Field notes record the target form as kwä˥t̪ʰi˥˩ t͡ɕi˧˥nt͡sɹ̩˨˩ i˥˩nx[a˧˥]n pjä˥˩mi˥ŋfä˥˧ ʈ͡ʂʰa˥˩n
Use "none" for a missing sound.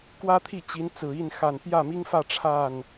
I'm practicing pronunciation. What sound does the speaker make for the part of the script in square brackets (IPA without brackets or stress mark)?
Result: a˨˩